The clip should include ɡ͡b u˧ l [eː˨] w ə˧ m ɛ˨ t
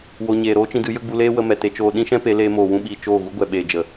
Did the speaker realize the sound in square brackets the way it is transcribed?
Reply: no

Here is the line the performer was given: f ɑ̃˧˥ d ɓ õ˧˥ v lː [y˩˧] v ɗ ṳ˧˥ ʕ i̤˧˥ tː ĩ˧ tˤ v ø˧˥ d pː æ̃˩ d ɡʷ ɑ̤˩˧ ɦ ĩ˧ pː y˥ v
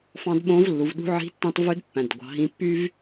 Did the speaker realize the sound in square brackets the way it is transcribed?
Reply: no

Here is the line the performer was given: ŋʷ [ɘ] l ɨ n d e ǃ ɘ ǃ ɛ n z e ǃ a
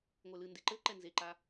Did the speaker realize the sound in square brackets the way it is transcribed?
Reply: no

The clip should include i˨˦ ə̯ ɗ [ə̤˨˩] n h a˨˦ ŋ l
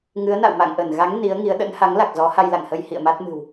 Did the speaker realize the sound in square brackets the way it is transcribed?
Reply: no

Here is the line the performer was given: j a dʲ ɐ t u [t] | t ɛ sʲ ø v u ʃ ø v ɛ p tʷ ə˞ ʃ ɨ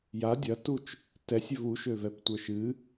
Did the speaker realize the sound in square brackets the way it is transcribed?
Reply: no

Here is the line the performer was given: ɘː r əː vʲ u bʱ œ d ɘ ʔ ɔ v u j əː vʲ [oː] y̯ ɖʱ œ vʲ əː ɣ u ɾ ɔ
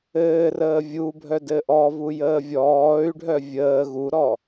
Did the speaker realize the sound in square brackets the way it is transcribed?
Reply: no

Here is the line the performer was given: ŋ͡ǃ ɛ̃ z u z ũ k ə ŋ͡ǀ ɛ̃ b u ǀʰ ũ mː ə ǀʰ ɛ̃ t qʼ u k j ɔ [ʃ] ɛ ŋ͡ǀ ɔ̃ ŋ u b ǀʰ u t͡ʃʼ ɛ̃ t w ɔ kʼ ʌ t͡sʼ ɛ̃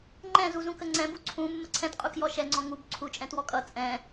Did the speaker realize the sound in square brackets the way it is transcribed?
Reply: yes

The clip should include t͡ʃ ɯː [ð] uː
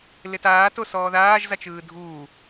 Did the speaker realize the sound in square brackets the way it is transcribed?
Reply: no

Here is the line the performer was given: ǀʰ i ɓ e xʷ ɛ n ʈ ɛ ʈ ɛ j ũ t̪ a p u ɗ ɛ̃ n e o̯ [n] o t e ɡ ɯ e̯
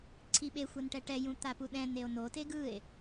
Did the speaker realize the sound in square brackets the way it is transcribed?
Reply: yes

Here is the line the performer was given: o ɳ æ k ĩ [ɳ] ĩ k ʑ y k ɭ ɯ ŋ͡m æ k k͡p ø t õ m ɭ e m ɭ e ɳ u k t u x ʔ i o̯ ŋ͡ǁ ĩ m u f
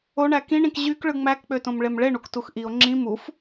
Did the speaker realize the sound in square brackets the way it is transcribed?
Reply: yes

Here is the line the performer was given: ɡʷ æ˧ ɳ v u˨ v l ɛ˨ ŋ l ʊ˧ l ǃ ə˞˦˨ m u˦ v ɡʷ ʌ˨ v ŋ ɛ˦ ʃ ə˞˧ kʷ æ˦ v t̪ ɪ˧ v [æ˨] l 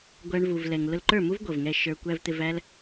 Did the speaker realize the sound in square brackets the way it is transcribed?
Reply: no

